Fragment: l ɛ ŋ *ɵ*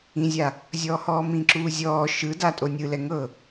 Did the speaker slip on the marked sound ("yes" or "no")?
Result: yes